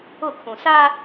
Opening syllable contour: falling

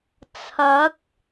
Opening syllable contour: rising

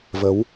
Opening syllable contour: rising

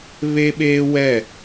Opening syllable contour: high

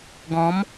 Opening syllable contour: rising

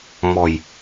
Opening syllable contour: low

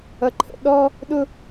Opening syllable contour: low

